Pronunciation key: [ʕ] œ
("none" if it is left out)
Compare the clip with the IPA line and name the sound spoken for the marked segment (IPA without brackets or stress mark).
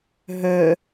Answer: ɦ